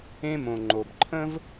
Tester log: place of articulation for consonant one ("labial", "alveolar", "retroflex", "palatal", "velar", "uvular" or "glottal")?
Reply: labial